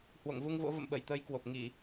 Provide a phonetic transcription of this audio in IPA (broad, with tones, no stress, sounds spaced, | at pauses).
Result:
h w o̰˧˨ ŋ v u˧ ŋ v o̰˧˥ v ə̰˧˨ m ɓ ə˧˩ j t̪ əː˨˦ j k w o˨˩ p̚ ŋ i˧˩˨